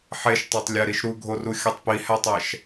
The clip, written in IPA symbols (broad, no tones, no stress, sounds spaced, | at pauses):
ħ e ʃ tˤ æ tˤ lʲ æ ɾ i ʃ ɾ u ɡʱ o r u xʲ ɒ tˤ p i h æ tˤ æ ʃ